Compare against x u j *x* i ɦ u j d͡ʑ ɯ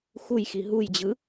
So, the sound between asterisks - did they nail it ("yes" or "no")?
yes